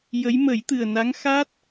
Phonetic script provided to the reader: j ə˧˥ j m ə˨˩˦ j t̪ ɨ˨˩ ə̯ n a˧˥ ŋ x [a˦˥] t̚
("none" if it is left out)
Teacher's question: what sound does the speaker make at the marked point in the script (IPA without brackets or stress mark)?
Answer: a˦˥